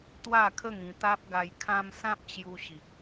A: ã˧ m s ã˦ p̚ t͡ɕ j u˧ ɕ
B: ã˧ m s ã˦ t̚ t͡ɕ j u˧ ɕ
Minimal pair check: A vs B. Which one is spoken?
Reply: A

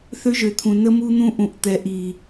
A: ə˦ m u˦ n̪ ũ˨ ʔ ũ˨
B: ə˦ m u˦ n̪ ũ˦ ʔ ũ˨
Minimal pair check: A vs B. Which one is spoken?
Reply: B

